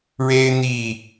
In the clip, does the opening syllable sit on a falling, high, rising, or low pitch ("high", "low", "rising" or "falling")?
high